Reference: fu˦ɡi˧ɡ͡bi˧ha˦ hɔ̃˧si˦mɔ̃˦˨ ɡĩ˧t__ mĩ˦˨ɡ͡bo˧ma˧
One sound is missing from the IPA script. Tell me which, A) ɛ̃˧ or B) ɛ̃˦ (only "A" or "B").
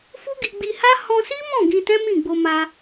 B